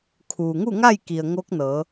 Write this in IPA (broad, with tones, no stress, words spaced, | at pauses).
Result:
kʰuː˩ŋu˥˨ŋa˥˨jki˩ə̯ ŋo˧˥k̚nɤː˩˧